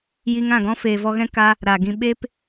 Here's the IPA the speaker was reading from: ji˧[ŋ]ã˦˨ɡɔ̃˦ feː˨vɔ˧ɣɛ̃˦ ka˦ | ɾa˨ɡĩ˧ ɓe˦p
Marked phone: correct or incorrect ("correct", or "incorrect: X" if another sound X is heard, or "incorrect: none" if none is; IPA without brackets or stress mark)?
correct